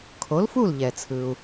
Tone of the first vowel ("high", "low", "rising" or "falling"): rising